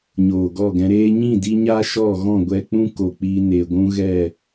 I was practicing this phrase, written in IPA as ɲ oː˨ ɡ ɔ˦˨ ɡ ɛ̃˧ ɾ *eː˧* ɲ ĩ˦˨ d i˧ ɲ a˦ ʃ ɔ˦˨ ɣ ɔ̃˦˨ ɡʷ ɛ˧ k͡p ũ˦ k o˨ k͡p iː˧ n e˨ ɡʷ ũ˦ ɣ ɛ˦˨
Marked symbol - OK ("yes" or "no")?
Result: yes